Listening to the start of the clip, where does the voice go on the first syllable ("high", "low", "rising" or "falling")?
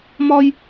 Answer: high